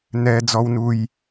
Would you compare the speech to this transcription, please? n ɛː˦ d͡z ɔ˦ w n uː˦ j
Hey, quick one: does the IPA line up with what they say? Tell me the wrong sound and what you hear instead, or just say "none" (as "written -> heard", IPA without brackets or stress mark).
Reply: uː˦ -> u˦